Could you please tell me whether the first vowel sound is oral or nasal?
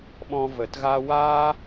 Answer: nasal